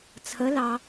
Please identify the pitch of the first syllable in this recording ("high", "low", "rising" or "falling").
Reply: rising